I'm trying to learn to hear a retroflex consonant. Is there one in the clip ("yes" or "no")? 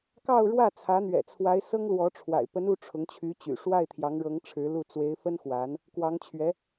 yes